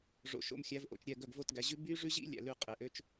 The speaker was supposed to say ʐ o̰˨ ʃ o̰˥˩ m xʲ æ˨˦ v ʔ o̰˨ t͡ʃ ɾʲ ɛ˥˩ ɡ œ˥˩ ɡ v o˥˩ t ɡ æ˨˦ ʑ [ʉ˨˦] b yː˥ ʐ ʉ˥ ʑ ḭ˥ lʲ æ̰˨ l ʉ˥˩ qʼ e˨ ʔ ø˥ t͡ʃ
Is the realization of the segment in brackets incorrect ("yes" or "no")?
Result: yes